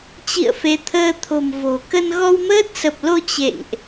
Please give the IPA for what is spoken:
t͡ɕ ḭ˧˨ ə̯ f e˨˦ t̪ʰ əː˧ t̪ʰ o̤˨˩ m v o̤˨˩ k ə˧ n ɣ ɔ˧ w m əː˦˥ t̚ s ə˨˩ p̚ l o˧ t͡ɕ ḛ˧˨ ŋ ʔ

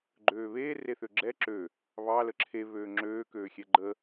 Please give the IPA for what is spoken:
ɡ͡ǃ øː β eː r e θ ø ɡ͡ǁ ɛ ǁ ø | β ɑ l ə ǁʰ e β øː ŋ͡ǁ øː k øː xʲ ɛ ɡ͡ǃ ə

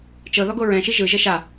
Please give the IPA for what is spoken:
t͡ʃ ɤ ð ɔ ɡ o ɹ ɛ̃ ʃ i ʒ ɯ ʒ ɛ ʃ a

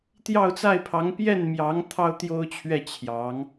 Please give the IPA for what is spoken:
t̪ j ɑ˥˧ ʊ̯ t͡s a˥˩ ɪ̯ pʰ ɑ˧˥ ŋ p j ɛ˥˩ n m j ɑ˧˥ ŋ t̪ʰ ɑ˥ ʊ̯ t̪ j o˥ ʊ̯ t͡ɕʰ ɥ ɛ˥˩ t͡ɕʰ j ɑ˧˥ ŋ

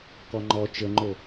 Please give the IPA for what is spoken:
k ɔ ŋ͡ǃ ɔ t͡ʃ ə ŋ͡ǃ o

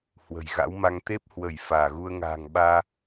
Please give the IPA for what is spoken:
h w ə̤˨˩ j ɣ a̰˧˥ w m a˧ ŋ t̪ e˦˥ p̚ h w ə˧˩ j f aː˧˩ ɣ u˧ ə̯ ŋ a̤ː˨˩ ŋ ɓ aː˧

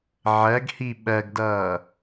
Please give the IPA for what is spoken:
ʕ ɜ ɡ h i ɓ ɜ ɡ d ʌː

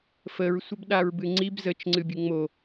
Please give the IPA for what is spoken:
f ə ɹ sʷ ə b ɗ a ɹ b ɨ ŋ͡ǀ i b z ə t͡ʃ ŋ͡ǀ ɨ bʲ ɨ ŋ͡m o

